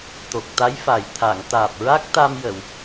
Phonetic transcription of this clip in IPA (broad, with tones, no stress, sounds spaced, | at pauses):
t̪ o˨˩ k̚ t̪ a˧˥ j f a˨˩ j t̪ʰ a˨˩˨ ŋ t̪ aː˨˩ p̚ ɹ a˦˥ k̚ t̪ a˧ m j ə˨˩˨ w